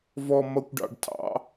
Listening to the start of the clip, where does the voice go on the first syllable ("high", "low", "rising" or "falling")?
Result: low